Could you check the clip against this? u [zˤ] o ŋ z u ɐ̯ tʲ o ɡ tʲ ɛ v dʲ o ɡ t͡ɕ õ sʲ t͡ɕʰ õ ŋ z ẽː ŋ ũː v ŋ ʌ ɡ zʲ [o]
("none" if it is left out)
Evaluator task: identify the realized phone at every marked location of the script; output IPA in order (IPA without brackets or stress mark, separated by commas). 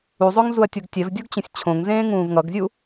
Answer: zˤ, u